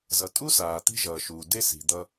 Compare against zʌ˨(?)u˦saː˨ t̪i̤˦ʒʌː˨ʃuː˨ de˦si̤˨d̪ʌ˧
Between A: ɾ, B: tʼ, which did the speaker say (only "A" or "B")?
B